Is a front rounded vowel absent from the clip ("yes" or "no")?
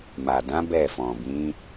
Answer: yes